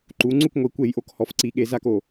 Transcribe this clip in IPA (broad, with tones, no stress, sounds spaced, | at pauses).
ǃ u˩˧ ŋ͡ǀ u˥˩ k ŋʷ i˩˧ kʷ e˧˩˧ j ʔ o˧˩˧ k h ɔ˩˧ f ǀ i˩˧ ɠ e˩˧ z a˥˩ k o˥˩